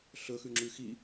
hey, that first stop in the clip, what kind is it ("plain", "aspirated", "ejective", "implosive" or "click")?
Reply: click